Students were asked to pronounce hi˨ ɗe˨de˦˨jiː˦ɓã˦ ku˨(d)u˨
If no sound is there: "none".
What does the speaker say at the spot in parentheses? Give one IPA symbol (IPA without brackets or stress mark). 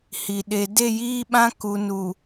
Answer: n